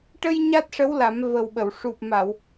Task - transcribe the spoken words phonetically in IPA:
ʈ ə˧ j ɲ a˦˥ t̚ ʂ ə˧˥ w l a˨˩˦ m v ə˨˩ w ɓ ə˨˩˨ w ʂ u˨˩ p̚ m a˨˩˨ w

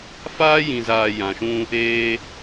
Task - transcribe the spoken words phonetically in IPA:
f aː˦ j ĩ˨ z aː˨ j ã˨ ʃ ũ˦ | eː˦

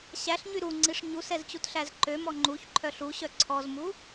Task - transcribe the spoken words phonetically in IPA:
ɕ æ ɬ ɲ y ɾ u ŋ͡ǀ i ʂ ɲ u s ɛ z t͡ɕ u t ɬ æ z ǃ ø m ɔ ŋ͡ǃ u ç ǃʰ œ ɬ u ɕ œ ǀʰ ɔ z m u

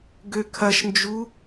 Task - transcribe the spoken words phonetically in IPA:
ɡ ø kʰ ɐ ʃ n d͡ʒ u

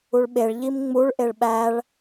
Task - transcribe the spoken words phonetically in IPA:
u ɭ ɓ e ɭ ʎ i m ŋ͡m u ɭ ʔ e ɭ ɓ æ ɭ

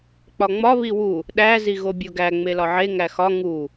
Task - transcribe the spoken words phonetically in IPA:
k͡p ɒ ŋ͡m ɒ β i w u | ɗ æ z i ɣ o bʲ o ɡ æ ŋ͡m e l ɒ ʕ e ŋ æ x ɒ ŋ u

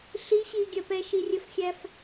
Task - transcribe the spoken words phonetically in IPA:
ɬ i ɕ iː ɡʲ ɜ p ɛ ʃ i rʲ ə f xʲ æ f

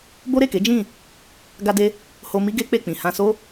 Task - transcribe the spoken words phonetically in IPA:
b o˦ ɾ e˦˨ k e˨˦ d͡ʒ ĩ˦˨ | ɡ a˦ d e˦ | h o˧ m i˦ ɡ e˦ k͡p e˦˨ k͡p ĩ˨ h ã˧ s o˦

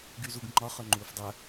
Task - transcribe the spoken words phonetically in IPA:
ɡ y z u ɡ ŋ͡ǃ ɒ χ œ ŋ͡ǃ uː f dˤ œ

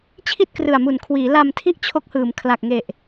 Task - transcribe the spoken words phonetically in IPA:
t͡ɕʰ i˥˩ t̚ k r ɯ˨˩ a̯ m u˨˩ n kʰ w iː˩˦ l a˧ m tʰ i˥˩ ʔ t͡ɕʰ o˦˥ k̚ h ɯː˩˦ m kʰ l a˨˩ k̚ ŋ e˨˩ ʔ

